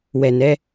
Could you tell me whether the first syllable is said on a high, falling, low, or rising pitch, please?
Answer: low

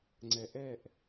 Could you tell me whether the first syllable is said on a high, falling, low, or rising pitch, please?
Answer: low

